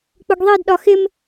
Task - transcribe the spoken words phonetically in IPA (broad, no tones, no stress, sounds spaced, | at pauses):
k͡p ʊ ɡ ðˤ i d ɗ ɒ x ɪ m